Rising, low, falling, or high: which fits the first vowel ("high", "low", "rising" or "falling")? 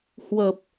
low